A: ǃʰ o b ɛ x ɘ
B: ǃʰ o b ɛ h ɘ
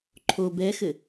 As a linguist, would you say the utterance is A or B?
A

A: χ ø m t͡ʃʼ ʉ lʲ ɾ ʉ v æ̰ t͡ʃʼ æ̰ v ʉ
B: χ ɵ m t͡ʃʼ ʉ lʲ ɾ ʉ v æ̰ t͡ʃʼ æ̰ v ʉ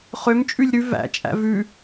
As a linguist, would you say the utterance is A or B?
A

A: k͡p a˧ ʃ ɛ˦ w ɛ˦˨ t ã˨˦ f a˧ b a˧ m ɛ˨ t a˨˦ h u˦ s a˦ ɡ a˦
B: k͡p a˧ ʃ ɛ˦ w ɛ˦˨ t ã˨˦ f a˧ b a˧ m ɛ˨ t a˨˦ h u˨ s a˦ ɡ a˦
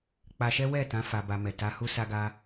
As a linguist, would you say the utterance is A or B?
A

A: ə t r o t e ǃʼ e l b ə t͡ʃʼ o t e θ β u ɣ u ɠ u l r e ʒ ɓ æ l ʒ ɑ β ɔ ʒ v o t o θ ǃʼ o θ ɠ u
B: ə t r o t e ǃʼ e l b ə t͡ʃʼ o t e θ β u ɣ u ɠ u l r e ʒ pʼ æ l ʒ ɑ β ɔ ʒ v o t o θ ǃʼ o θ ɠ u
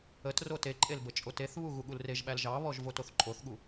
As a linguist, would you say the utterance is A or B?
A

